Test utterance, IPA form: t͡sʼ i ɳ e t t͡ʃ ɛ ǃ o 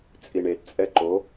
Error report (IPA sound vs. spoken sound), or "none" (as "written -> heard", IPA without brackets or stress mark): t͡ʃ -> t͡sʼ